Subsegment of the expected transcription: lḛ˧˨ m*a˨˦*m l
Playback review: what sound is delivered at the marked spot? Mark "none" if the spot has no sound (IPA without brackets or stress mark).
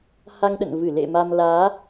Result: a˧